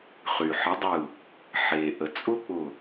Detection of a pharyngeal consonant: present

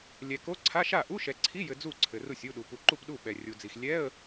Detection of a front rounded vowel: absent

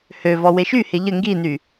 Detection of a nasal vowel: absent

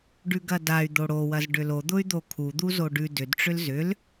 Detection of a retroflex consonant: present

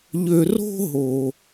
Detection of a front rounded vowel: present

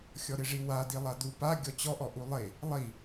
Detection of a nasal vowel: absent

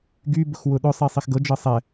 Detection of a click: absent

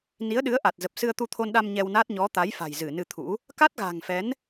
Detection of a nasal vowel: absent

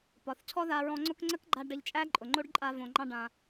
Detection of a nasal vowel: present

